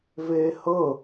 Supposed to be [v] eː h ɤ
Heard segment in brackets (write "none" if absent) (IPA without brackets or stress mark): v